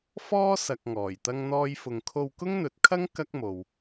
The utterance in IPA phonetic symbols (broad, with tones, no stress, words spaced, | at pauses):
fɔː˥sɐ˨k̚ ŋɔː˨˩jt̪ɐ˥ŋn̪ɔː˥jfʊ˧ŋ kʰo˧wkʊ˥ŋn̪ɵ˨˥t̚kʰɐ˥ŋ kɐ˥k̚mo˨w